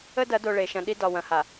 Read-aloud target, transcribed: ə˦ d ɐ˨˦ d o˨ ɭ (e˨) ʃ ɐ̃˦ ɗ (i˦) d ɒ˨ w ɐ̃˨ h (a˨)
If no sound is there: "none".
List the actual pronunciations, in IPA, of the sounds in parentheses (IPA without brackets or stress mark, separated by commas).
e˨, i˦, a˨